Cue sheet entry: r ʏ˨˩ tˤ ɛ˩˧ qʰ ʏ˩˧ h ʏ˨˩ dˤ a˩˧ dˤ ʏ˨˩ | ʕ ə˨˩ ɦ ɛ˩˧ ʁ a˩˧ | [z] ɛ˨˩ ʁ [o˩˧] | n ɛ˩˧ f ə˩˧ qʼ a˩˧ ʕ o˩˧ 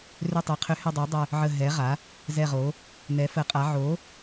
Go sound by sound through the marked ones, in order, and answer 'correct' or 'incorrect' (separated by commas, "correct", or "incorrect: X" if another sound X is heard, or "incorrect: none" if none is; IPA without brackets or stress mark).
correct, correct